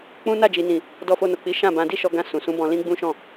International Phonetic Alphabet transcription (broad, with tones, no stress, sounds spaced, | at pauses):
k͡p ũ˦ n a˦˨ d͡ʒ i˨ n ĩ˨ | d ɔ˧ f o˧ n o˨ k͡p i˨˦ ʃ ã˦˨ b ã˧ d i˦ ʃ ɔ˧ ɡ ã˧ s ũ˨ s ũ˨˦ b ɔ̃˧ l ĩ˦ ɡ͡b ũ˦ ʃ ɔ̃˦˨